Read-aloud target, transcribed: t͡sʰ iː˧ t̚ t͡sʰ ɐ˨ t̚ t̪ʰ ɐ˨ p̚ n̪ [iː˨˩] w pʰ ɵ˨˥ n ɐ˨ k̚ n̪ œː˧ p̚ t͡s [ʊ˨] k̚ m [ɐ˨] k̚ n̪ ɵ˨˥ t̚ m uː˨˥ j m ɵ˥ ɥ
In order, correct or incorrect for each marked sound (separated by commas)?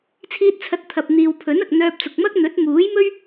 incorrect, correct, incorrect